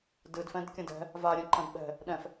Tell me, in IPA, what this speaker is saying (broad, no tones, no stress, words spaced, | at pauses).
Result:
dɨdfɛ̃d kʲɐ̃dɛ̤ | va ɾʲɛ̃ǃɐ̃dɓɛ̤ | ɗɛ̃f